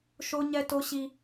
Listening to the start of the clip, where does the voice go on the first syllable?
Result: high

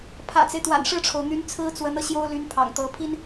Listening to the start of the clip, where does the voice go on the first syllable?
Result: low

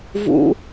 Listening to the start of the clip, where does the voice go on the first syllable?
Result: high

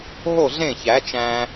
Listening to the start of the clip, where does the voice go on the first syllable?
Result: falling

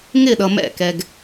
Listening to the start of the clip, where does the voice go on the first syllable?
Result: falling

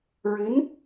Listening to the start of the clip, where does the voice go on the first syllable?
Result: rising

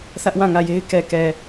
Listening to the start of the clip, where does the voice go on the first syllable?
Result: high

